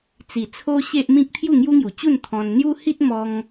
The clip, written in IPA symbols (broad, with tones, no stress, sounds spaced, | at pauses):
t͡s i˨˩ t͡sʰ o˦ ɕ e˦ ʔ m ĩ˦ k̚ t̪ʰ j u˥˧ ŋ j u˦ ŋ j u˨˩ t͡ɕ u˥˧ n t̪ʰ ɔ̃˧ n n̪ j u˦ h i˦ t̚ m ɔ˧ ŋ